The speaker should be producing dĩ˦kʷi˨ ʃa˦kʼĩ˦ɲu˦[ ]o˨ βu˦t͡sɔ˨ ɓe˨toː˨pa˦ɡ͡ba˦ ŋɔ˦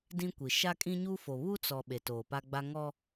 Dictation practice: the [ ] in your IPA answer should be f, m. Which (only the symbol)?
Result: f